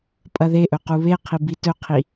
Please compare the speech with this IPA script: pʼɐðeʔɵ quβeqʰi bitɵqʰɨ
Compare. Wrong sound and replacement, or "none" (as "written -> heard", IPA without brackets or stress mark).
ɨ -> i